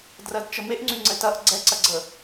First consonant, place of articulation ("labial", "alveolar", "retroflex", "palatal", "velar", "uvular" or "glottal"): alveolar